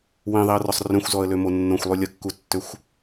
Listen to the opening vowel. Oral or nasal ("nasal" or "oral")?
nasal